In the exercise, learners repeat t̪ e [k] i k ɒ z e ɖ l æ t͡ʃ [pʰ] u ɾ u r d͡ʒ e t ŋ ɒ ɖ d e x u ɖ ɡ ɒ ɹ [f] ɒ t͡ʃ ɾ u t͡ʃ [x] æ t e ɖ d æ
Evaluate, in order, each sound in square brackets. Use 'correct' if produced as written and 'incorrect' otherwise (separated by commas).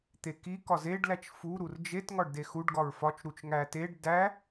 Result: correct, incorrect, correct, incorrect